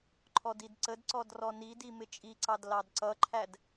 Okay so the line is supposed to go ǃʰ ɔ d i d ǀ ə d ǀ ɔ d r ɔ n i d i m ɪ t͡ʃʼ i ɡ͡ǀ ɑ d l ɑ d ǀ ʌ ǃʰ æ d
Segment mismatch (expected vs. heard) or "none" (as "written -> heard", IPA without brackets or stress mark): ɡ͡ǀ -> ǀ